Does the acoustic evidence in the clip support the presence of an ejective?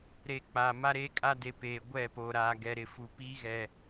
yes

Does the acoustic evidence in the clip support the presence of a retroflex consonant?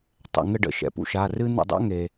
yes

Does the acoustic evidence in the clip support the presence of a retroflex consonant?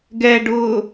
yes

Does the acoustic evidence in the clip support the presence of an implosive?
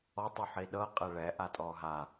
yes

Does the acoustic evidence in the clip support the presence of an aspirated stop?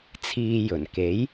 yes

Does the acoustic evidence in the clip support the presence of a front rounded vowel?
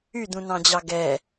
yes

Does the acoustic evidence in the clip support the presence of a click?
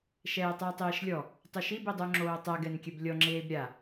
yes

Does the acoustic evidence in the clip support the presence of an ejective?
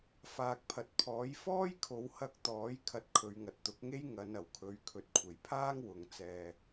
no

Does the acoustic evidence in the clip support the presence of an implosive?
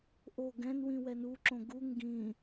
no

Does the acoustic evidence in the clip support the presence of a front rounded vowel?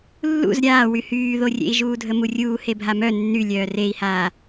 yes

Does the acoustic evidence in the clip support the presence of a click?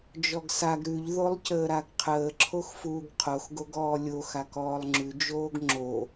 yes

